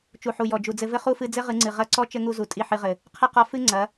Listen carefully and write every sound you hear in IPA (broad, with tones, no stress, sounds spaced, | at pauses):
t͡ʃ u˨ ħ u˨ j ɔ˨ d͡ʒ u˨ d͡z ɘ˧ v ɘ˦ χ u˦ f ɨ˧ d͡z ɘ˦ ʁ ɨ˨˦ ŋ͡ǀ ɨ˨ ʁ ɐ˦˨ ǀ ɔ˦ t͡ʃ ɘ˦ ŋ u˧ z u˨ tʼ i˦˨ ħ ɨ˧ ʁ ɘ˨ | qʰ ɐ˦ q ɔ˧ f ɨ˦ ŋ͡ǀ ɐ˨˦